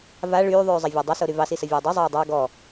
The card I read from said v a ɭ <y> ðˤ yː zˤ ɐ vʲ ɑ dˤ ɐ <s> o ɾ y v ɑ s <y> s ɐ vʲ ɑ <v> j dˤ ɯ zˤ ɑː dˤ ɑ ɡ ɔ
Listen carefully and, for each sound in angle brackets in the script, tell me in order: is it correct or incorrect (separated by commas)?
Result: incorrect, correct, incorrect, incorrect